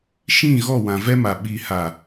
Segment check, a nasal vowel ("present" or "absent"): present